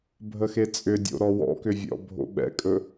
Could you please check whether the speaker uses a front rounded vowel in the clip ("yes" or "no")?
yes